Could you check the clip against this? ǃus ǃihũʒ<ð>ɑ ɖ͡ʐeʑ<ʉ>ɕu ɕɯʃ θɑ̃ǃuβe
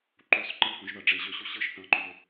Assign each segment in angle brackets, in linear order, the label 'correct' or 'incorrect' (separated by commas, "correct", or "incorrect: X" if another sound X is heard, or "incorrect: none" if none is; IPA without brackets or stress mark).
correct, incorrect: ø